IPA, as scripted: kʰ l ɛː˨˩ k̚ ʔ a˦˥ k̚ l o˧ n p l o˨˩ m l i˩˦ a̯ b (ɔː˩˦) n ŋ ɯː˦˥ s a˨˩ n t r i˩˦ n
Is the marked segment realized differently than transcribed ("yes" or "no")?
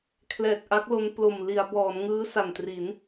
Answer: no